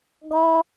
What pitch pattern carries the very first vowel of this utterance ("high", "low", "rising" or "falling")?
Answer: high